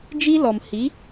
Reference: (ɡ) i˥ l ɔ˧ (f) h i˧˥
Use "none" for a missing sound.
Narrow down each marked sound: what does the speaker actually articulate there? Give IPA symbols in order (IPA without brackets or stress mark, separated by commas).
d͡ʒ, m